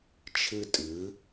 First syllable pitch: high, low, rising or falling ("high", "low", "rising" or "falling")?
high